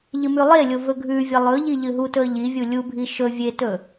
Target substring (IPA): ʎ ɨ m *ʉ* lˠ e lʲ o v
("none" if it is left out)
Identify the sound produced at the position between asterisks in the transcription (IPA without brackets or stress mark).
ʉ